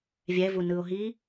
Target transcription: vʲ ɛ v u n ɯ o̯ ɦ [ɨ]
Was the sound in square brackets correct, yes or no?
no